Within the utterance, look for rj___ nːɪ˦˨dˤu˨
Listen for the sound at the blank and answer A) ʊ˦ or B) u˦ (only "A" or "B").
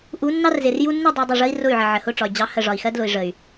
B